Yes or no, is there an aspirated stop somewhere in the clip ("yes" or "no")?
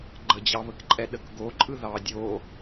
no